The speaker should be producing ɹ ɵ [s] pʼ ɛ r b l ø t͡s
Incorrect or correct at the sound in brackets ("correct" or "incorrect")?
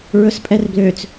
correct